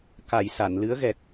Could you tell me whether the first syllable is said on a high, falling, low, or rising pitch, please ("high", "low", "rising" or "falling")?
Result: low